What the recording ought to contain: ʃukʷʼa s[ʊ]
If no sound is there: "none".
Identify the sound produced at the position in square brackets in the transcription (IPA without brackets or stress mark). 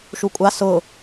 ʊ